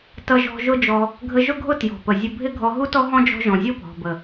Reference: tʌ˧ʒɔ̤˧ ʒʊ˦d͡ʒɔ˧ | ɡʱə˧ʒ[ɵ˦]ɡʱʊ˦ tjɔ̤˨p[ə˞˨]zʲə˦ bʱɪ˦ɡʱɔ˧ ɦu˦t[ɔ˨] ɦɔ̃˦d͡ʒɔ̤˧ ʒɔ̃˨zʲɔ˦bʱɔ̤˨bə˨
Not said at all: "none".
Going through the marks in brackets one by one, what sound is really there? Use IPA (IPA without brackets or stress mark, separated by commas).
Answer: ʊ˦, ə˨, ɔ˦